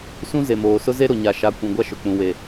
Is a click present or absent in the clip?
absent